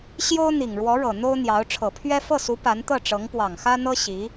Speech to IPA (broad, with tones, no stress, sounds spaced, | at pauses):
ɕ j o˥ ʊ̯ n̪ i˨˩ ŋ ɻ w ɔ˧˥ ɻ ɤ˨˩ n̪ o˥ ʊ̯ n̪ j ɑ˧˥ ʊ̯ ʈ͡ʂʰ ɤ˨˩ pʰ ɥ ɛ˥ f ɤ˥˩ s u˧˥ p a˧˥ n t̪ ɤ˥˩ ʈ͡ʂ ɤ˧˥ ŋ p w ɑ˨˩ ŋ x ä˥ n̪ ɤ˥ ɕ i˧˥